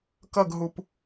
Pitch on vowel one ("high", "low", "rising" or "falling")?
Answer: falling